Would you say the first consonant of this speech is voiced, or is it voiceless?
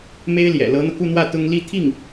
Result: voiced